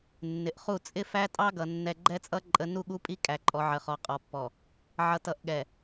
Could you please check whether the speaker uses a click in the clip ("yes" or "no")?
yes